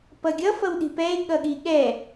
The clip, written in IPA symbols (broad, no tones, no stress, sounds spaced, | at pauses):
p ʌ ɡʲ ʌ f ʌ w ɗ i̤ p ɛ e̯ ɠ ʌ ɠ i ɠ ɛ